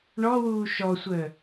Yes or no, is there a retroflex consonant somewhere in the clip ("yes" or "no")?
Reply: yes